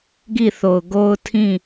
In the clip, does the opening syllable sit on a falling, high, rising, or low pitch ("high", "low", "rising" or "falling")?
falling